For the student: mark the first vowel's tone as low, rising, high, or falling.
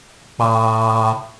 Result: high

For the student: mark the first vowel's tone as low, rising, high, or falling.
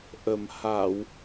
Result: low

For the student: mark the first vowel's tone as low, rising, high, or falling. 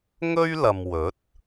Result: high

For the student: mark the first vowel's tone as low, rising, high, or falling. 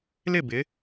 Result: falling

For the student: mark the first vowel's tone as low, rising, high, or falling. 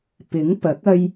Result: rising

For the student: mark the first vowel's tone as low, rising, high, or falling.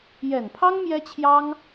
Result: low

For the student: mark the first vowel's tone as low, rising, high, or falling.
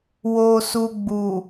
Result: low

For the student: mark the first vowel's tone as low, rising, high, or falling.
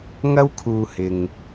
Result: high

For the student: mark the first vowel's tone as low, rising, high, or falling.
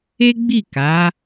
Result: high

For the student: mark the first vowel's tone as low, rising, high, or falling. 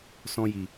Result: high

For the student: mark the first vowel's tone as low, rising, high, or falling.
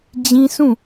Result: high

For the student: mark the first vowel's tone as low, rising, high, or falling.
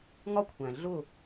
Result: high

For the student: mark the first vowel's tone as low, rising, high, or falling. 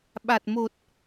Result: low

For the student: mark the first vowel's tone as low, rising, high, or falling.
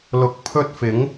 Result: rising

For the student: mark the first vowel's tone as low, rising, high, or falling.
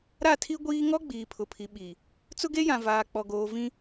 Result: falling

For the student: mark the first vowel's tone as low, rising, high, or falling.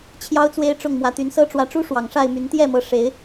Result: high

